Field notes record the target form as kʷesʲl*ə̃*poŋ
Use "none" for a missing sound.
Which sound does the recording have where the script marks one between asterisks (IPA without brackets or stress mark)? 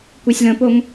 ə̃